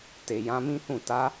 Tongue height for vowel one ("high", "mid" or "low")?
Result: mid